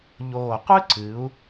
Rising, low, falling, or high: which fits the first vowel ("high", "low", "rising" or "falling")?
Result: low